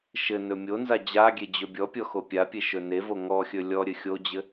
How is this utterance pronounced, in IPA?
ʃ ɘ n ɵ mʲ o n z a d͡ʑ a ɡʲ e d͡ʑ ɵ bʲ ɔ pʲ ɔ x o pʲ a pʲ e ʃ ɵ n e v o ŋ ɔ xʲ ɵ lʲ ɔ ɾʲ ɘ xʲ o d͡ʑ ɘ

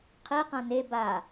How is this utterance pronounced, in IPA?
qʰ i q ã n e b a

